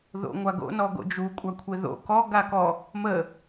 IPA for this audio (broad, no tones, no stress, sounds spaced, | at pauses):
ð o̰ ŋʷ a ɡ o̰ n ɔ ɡ o̰ d͡ʒ u kʷʼ a kʷʰ e ð o̰ k ɔ ɡ a k ɔ | m ə